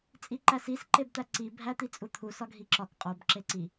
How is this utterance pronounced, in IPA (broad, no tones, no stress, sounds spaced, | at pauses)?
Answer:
t͡sʼ i ǃ æ s i s ǃ e b t̪ æ ǀ i bʱ æ t̪ i t͡sʼ u t̪ʰ u s ɒ ɡʱ i ǁ ɒ k qʼ o b ǁ e ǀ i